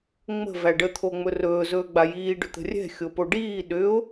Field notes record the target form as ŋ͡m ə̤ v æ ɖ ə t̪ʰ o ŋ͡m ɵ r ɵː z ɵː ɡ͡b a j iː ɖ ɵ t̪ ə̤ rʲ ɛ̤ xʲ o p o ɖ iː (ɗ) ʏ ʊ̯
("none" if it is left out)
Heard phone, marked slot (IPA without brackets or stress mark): ɗ